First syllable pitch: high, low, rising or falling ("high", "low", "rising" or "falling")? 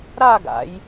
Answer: falling